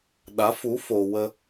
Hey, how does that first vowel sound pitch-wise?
rising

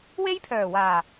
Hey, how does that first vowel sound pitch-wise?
high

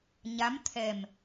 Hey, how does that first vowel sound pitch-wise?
rising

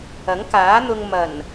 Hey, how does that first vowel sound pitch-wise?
rising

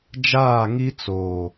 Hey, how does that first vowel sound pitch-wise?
falling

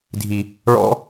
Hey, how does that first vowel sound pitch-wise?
low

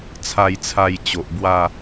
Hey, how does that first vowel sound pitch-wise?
falling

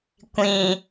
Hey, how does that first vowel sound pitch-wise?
low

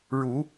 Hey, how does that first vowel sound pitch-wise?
rising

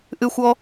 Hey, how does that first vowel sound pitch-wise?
high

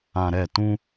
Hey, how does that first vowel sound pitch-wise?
low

